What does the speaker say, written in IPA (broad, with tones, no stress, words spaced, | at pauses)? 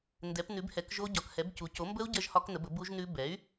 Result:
ndɛ˩˥pnʉ˩˥bhɛ˩˥kʒo˦˥ ɟɒ˩˥khɛ˩˥bcu˩˥ co˩˥mbə˦˥u̯ ɟɜ˦˥ʒhɒ˦˥knə˩˥bə˩˥ bu˦˥ʒnʉ˦˥ bɛ˩˥y̯